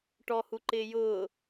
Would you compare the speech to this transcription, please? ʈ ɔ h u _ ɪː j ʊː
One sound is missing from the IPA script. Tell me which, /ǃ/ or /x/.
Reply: ǃ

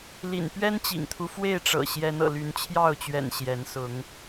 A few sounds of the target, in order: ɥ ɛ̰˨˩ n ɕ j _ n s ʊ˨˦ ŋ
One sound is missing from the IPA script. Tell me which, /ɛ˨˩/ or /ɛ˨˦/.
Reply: ɛ˨˦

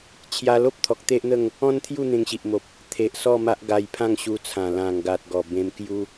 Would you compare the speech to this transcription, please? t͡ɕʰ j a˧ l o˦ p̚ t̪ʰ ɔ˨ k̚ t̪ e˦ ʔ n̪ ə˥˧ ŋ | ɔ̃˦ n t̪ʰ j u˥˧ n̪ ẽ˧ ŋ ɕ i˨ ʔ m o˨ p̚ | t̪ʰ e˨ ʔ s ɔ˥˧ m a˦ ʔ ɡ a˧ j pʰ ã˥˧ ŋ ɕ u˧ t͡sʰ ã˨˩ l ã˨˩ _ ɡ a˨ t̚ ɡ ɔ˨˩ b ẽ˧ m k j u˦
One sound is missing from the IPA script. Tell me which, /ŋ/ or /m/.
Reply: ŋ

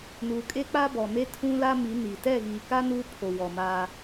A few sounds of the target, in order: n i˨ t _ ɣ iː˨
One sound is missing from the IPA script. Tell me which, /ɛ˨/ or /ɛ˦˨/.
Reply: ɛ˦˨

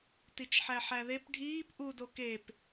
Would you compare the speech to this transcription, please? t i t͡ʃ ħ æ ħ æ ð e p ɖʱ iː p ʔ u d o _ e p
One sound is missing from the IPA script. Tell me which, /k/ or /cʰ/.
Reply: k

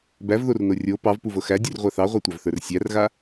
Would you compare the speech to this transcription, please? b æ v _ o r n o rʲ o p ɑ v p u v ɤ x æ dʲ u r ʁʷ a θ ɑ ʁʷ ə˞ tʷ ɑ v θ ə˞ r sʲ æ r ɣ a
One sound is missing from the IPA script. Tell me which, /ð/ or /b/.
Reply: ð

